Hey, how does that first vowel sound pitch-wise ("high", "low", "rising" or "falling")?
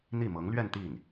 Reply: falling